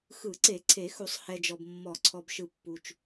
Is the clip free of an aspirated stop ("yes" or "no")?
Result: no